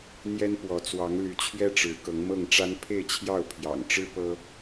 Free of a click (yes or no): yes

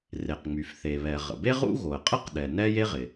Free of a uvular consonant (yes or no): no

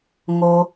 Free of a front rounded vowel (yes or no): yes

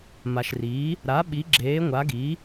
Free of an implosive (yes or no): no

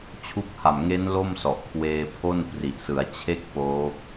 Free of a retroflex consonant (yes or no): yes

